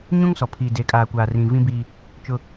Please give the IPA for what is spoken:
ɲũ˦ŋsɔ˨ pʰiː˨ de˨kʼaː˨ kʷaː˨rĩ˨ vĩ˦biː˦ | t͡ʃʊ˦

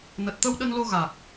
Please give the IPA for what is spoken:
nə˨˩t̚t̪ə˧w ɗə˧nlo˧ ɣaː˨˩k̚

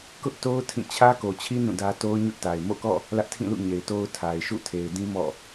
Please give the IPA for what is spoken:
kʊ˦ʔto˦ʊ̯ tʰĩ˦˨ t͡ɕʰä˦ko˨t͡ɕʰi˦ nũ˦˨dä˦ to˦ʊ̯ɲʊ˦ʔta˨ɪ̯ mo̰˦˨kɔ̰˦˨ | lä˦ʔtʰĩ˦˨lṵ˦˨ ɲe˨ɪ̯to˦ʊ̯ tʰa˨ɪ̯ ʃṵ˦˨tʰe˨ɪ̯dĩ˦ mɔ̰˦˨

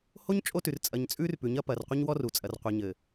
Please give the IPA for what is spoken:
ho˦ɲ t͡ʃʼo˦tʉ˨r t͡sʼɐ˨ɲt͡sʼʉː˦r pʉ˨ɲɐ˦pɐː˨r qʷɘ˦ɲwɔ˦ru˨ t͡sʼɐ˨rqʷe˨ɲɘ˨

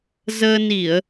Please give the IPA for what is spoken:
zəː˧ni˧˩˨ə̯

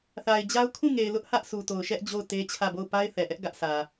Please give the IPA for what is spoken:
θa˨ɪ̯d͡ʑa˦ʊ̯ kʰũ˦˨ŋe˨ɪ̯lʊ˦ʔ hä˦ʔsu˨ to˨ʊ̯ʃɛ˦ʔ d͡ʑo˦˨ʊ̯te˦t͡ɕʰä˦˨bo˦˨ʊ̯ pa˦ɪ̯θɛ˨ʔɛ˦ʔ ɡä˦ʔsä˨

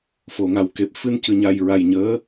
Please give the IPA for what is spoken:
fo˨˩˨ŋa˨˩˦wke˨˩p̚ fɨ˧ncɨ˨˩˨ɲa˨˩j ɹa˨˩jɲəː˧˥

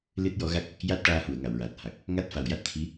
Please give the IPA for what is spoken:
lɨ˦˥t̚jɔ˧˥ɣa˦˥k̚ | ja˦˥t̚ʈaː˧hu˨˩˨ə̯ ŋa˨˩˨wɹaː˨˩t̚ha˨˩k̚ | ŋa˦˥t̚ fa˨˩wja˦˥t̚t̪ʰi˧˥

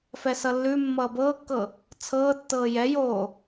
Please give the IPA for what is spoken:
fɛsʌlːʉ mːʌːbɤːkːɤ | t͡sʰɤːtːɤː jɛjoː

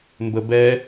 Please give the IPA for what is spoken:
mbəbɛ

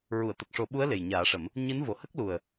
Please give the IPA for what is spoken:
ɹu˨˩˨ə̯t̪ə˨˩k̚ʂo˨˩˦ɓu˧˥ə̯ le˨˩jɲaː˨˩˦ʂə˨˩˦m | ɲɨ˧˥n vo˨˩˨hə˦˥k̚lu˨˩ə̯

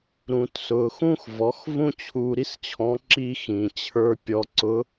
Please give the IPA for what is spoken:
ɾũ˩tsʊː˩xũ˧x vɔ˩˧x vũ˥t͡ɕʰuː˧ ɾi˥st͡ɕʰɔ̃˧˥ ǁi˧xĩ˩t͡ɕʰə˞˧ pʲɔ˧ǀʊ˧˥

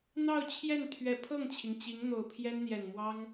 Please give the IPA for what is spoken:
n̪ɑ˥˧ʊ̯t͡ɕʰjɛ˥˩n t̪ʰɥɛ˨˩pʰɤ˥˩ŋt͡ɕʰi˩ŋ t͡ɕi˧˥ŋn̪o˨˩ʊ̯pʰjɛ˥n n̪jɛ˨˩nmwɑ˥ŋ

